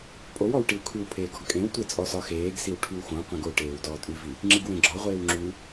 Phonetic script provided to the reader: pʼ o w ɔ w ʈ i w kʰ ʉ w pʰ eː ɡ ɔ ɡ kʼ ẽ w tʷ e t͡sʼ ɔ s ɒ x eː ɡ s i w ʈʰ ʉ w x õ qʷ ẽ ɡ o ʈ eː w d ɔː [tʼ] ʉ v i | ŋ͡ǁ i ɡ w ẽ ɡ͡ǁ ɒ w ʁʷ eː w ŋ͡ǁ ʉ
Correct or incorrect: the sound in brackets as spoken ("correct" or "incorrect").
correct